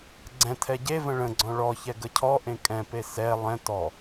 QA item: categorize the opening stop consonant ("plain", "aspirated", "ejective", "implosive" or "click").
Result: click